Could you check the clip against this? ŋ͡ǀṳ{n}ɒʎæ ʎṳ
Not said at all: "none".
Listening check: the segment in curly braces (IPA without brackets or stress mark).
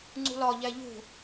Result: l